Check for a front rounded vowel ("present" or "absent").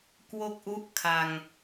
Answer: absent